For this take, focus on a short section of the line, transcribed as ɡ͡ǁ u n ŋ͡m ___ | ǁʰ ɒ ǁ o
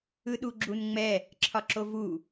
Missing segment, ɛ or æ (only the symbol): ɛ